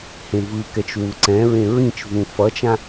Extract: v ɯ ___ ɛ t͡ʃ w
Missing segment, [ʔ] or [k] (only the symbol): k